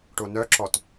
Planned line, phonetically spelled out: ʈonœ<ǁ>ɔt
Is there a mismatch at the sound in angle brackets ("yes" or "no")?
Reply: no